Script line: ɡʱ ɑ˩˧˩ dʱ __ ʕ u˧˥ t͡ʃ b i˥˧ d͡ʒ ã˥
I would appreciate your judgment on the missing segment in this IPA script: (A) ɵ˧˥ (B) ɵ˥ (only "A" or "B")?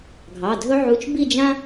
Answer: B